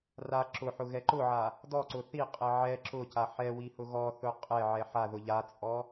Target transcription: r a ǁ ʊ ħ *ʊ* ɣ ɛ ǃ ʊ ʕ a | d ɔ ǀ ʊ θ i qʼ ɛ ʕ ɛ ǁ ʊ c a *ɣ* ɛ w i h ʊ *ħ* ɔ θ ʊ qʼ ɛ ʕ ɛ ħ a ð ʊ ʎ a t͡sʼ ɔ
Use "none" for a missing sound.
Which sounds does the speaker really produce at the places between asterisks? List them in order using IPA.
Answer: ʊ, ħ, ɣ

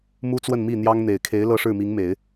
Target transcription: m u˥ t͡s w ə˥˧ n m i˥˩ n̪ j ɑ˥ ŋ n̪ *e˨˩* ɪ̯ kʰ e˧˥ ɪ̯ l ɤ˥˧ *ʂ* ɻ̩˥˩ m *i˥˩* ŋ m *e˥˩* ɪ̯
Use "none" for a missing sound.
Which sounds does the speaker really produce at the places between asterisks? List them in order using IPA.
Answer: e˨˩, ʂ, i˧˥, e˨˩˦

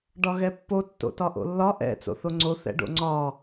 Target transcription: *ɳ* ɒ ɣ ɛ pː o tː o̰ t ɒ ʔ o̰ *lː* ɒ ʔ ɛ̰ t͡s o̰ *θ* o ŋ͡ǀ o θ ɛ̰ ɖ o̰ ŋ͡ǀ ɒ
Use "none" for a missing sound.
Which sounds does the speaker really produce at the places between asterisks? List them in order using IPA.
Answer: ɖ, lː, θ

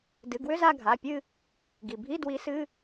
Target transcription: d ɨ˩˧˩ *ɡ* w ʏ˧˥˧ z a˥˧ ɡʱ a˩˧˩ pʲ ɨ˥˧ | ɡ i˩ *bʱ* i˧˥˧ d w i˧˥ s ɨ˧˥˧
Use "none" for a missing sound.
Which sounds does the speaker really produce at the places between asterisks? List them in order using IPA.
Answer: ɡ, bʱ

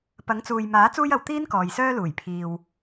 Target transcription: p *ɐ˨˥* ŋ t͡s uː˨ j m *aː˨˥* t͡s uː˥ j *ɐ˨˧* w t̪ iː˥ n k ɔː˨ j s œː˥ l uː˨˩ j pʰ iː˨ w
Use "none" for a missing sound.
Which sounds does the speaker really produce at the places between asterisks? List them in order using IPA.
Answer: ɐ˨˥, aː˨˥, ɐ˨˧

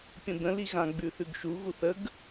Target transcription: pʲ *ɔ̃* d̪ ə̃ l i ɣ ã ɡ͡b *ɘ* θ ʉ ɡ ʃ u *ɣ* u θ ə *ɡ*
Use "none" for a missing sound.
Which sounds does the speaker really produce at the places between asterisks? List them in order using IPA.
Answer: ə̃, ʉ, ɣ, ɡ

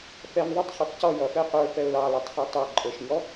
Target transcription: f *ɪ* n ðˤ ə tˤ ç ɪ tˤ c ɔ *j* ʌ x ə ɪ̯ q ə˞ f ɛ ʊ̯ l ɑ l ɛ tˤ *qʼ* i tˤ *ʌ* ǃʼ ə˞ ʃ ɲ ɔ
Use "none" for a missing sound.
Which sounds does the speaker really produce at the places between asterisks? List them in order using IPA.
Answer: ɛ, j, χ, ɑ

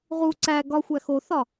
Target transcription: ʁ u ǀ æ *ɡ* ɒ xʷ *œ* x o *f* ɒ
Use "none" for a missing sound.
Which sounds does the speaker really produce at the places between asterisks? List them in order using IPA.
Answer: ɡ, æ, θ

